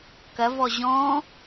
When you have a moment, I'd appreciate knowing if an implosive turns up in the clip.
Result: no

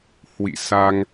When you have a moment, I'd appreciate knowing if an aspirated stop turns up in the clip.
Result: no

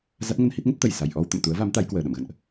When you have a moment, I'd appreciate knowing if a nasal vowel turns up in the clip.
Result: no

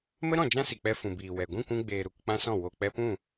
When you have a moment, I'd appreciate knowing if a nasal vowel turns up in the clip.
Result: yes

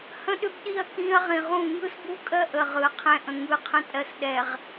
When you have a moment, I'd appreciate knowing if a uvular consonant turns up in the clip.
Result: yes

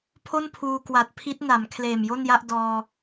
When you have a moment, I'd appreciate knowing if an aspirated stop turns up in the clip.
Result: yes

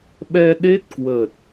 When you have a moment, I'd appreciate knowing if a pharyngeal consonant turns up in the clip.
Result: no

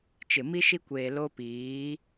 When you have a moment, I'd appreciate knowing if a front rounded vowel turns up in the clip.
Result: no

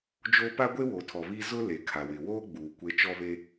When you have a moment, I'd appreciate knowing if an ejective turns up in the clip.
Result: no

